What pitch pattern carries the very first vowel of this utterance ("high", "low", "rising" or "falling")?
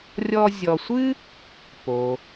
high